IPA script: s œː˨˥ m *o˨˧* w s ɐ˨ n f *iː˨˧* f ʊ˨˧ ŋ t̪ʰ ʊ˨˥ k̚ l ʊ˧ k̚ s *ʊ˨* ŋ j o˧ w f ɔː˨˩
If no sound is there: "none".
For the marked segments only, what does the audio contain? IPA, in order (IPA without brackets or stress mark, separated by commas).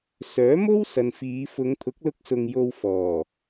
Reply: o˥, iː˨˧, ʊ˨